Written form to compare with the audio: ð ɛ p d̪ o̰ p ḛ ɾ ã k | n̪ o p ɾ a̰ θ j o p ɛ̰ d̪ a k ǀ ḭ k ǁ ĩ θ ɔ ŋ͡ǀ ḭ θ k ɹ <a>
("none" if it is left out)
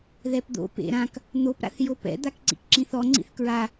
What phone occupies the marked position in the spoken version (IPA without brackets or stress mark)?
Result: a